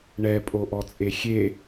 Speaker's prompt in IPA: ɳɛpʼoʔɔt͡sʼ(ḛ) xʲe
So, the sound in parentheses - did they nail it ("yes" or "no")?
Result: no